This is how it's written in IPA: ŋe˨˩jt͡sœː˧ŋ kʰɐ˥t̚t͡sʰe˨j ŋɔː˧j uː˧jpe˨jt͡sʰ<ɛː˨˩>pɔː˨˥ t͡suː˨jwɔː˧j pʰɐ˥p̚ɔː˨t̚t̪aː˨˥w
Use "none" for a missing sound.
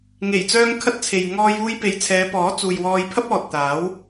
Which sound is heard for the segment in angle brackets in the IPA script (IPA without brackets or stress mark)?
ɛː˨˧